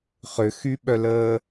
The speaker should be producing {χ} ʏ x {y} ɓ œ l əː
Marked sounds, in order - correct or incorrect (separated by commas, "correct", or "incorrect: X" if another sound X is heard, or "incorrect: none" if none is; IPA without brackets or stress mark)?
correct, correct